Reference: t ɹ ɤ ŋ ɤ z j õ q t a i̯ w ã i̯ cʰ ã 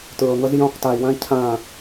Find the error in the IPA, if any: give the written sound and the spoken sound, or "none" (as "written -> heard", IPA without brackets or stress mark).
none